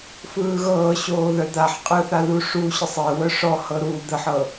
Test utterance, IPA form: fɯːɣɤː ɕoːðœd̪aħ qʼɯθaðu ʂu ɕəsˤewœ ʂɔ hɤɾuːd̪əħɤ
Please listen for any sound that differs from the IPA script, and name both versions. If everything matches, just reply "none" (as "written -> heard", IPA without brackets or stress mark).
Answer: none